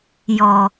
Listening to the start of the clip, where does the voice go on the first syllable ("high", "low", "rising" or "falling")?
low